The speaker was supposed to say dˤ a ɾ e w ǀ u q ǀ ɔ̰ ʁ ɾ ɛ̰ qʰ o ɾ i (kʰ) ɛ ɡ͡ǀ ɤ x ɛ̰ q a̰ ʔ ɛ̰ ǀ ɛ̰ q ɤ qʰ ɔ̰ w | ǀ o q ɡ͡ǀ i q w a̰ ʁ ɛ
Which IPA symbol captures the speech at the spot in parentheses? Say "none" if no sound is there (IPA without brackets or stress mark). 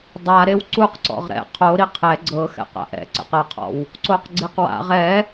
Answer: qʰ